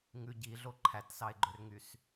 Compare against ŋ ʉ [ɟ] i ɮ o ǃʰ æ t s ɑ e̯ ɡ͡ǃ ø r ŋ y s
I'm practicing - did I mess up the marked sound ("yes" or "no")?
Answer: no